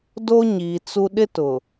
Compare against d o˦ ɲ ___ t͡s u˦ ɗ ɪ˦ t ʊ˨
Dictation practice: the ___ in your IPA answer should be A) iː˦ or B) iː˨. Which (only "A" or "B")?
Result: B